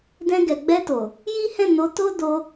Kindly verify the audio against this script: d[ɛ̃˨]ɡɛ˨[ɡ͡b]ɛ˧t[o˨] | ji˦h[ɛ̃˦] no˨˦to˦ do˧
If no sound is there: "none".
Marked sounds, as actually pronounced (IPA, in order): ɛ̃˧, ɡ͡b, o˨, ɛ̃˦˨

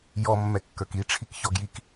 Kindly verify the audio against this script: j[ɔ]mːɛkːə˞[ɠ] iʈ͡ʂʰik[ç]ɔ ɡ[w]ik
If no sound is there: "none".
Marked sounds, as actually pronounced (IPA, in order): ɔ, k, ç, j

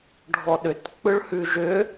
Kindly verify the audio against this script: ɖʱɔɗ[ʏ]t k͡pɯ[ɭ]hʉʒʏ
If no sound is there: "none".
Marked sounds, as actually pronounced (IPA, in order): ʏ, ɭ

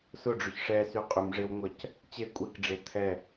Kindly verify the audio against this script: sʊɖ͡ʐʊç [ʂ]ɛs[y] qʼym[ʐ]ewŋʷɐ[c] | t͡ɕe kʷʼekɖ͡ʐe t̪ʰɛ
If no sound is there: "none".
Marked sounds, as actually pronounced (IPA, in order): ʂ, y, ʐ, c

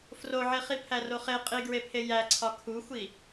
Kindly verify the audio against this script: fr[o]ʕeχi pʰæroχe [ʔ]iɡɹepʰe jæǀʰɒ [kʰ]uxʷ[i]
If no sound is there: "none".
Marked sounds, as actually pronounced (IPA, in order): o, qʼ, kʰ, i

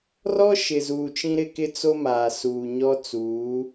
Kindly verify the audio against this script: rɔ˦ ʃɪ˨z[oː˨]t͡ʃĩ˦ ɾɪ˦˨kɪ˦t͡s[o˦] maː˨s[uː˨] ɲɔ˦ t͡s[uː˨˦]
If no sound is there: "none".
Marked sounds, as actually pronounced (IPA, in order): uː˨, o˦, uː˨, uː˨˦

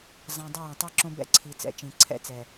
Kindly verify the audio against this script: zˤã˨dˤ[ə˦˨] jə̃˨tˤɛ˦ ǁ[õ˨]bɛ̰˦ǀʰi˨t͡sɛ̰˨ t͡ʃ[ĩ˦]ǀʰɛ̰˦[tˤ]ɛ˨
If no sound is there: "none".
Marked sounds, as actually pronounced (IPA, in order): ə˦˨, õ˦, ĩ˨, t͡s

